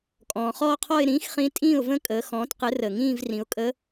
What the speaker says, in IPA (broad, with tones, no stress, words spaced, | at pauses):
kʼɔ̃ː˩ χɔː˥˧qʰɔ˥˧ɪ̯ ɾĩː˧˥xχĩ˧˥ tʼĩː˥˩ʊ̯və̃˥˧kʼəː˩˧ xɔ̃ː˩˥tqɘ˩˥rəː˩ŋĩː˥˧v rĩ˩˥ʊ̯kʼə˧˥